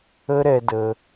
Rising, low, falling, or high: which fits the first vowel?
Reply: high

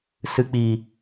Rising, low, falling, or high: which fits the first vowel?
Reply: low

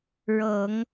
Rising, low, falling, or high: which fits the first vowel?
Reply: low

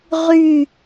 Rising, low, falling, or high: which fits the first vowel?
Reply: falling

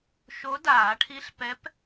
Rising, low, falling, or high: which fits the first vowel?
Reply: rising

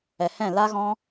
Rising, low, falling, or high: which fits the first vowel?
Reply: low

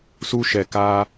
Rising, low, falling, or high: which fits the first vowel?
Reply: high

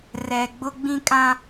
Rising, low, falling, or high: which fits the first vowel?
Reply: low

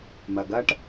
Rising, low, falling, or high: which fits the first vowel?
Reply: low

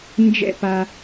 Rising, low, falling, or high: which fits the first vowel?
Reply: falling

